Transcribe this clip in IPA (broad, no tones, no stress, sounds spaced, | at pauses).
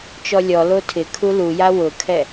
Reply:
t͡ʃ ɔ lʲ ɔ l o tʰ ɪ kʰ u l u j a w ʊ kʰ ɛ